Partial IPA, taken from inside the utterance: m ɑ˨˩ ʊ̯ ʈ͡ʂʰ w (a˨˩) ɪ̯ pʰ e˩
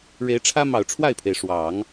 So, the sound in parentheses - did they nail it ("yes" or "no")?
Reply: no